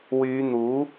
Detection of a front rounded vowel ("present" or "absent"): present